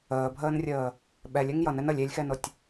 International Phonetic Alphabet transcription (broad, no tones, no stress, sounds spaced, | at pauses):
əː bʱ əː n rʲ əː | ɓ ɛ lʲ ɛ ŋ j ʌ n ɛ n ə lʲ e lʲ x ɛ n ʊ tʲ